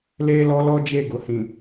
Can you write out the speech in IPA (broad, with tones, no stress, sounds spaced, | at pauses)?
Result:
l eː˦ l ɔ˦ l ɔ˦ d͡ʒ e˦˨ ɡ ʊ˨ h ĩ˨